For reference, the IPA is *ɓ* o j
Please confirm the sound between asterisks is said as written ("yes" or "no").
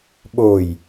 yes